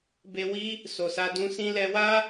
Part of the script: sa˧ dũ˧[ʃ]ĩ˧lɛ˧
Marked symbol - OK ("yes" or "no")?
no